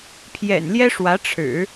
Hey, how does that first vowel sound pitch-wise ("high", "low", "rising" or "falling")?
low